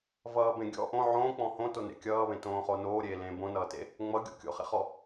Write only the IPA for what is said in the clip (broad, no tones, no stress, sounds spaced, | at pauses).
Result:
v ʌː b ẽ ɡʲ ɔ̰ ʔ õ ʕ õː k͡p ɔ̃ h õ t o n ḛ kʲ ʌː β ẽ t õː χ o n oː ɾʲ eː l ẽː b õ n ʌː t ḛ | ŋ͡m ʌ ɡʲ o̰ kʲ o̰ χ ḛ χ ɔ